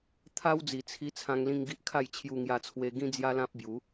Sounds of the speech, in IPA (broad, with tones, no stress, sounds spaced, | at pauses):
t̪ʰ a˦ w d͡z i˨˩ t͡sʰ i˧ t͡sʰ ã˧ ŋ l ĩ˧ ŋ ɡ i˦ ʔ kʰ a˥˧ j t͡ɕʰ j u˧ ŋ j a˧ t͡sʰ w e˧ ɡ ĩ˦ d͡z j a˦ l ã˦ p̚ b j u˨˦